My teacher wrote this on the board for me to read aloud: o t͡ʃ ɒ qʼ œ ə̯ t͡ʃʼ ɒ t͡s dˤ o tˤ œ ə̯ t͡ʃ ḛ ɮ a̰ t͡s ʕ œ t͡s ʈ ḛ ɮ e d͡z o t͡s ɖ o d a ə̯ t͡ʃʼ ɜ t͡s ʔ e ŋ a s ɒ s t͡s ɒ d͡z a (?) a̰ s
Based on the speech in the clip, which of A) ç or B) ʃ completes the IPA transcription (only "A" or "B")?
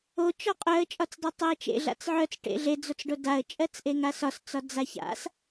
A